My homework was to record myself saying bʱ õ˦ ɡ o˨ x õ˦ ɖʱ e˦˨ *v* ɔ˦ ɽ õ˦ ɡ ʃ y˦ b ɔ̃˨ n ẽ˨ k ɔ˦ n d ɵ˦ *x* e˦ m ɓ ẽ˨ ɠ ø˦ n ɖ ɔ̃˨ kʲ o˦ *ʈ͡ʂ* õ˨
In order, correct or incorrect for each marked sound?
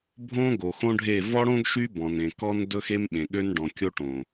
correct, correct, incorrect: ʈ

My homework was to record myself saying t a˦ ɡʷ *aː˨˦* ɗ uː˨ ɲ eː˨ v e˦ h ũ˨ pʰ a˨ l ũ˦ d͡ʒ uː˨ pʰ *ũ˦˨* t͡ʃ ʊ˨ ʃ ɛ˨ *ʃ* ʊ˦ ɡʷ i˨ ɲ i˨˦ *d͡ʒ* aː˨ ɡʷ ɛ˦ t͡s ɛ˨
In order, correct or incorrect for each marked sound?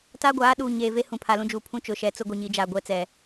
correct, incorrect: ũ˦, incorrect: t͡s, correct

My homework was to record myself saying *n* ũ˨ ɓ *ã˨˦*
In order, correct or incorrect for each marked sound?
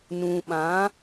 correct, correct

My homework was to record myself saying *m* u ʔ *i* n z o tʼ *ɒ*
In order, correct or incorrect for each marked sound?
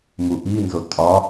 correct, correct, correct

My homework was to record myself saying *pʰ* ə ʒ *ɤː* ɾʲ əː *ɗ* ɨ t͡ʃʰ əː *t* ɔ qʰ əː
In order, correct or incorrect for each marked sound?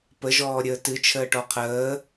incorrect: p, incorrect: ɔː, incorrect: t, incorrect: ʈ

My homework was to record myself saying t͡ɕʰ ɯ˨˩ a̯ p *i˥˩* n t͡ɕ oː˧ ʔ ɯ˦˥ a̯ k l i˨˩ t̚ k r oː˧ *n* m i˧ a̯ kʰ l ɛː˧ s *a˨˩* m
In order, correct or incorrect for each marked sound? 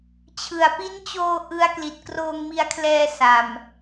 incorrect: i˦˥, incorrect: ŋ, correct

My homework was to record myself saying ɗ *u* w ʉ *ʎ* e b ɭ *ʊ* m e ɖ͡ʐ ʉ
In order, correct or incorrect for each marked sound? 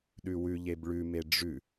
incorrect: ʉ, correct, incorrect: ʉ

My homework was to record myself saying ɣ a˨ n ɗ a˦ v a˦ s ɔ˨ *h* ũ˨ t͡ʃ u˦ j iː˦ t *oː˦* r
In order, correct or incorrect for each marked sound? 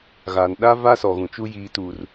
incorrect: ɣ, incorrect: uː˦

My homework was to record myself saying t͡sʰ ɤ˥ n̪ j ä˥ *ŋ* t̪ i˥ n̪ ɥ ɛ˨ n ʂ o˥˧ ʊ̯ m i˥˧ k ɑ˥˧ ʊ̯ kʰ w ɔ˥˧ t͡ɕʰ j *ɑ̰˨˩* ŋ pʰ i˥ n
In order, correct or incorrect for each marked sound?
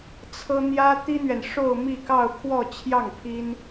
incorrect: none, incorrect: ɑ˥˩

